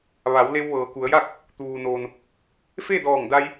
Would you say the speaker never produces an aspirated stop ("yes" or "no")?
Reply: yes